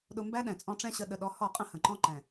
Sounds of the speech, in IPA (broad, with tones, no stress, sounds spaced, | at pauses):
ɗ ʊ˧ m b æ˦ ɗ ɛ̃˨ t͡sʼ ɔ̃˧ ʈ͡ʂ ɛ̃˦ ɕ ə˧ ɗ ə˨ ɗ ɔ˨˦ h ɔ˦˨ qʼ ə̃˦ h ə̃˨ ǃ ɔ̃˦ ǃ ɛ̃˨